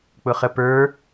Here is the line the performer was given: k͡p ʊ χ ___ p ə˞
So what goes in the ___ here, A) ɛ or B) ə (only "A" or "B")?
B